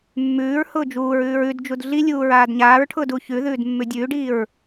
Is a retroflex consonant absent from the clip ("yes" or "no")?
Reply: no